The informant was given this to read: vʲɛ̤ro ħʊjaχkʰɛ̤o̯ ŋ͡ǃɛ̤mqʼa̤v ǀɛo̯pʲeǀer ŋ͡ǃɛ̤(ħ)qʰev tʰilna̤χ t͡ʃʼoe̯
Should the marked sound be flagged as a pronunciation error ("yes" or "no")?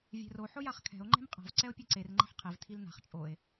no